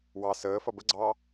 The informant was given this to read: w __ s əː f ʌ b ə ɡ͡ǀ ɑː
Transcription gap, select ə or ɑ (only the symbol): ɑ